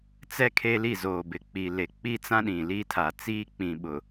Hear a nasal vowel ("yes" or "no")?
yes